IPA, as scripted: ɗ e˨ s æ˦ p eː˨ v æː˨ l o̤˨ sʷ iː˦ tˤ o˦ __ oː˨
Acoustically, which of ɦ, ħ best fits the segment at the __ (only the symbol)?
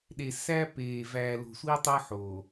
ħ